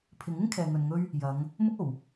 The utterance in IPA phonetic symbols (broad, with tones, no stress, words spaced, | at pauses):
pʰɪ˨˥ŋɪ˥ŋ kʰɛː˨ŋɵ˨nŋɵ˥ɥ | jɐ˨˧ŋ | mʊ˥k̚o˨˩w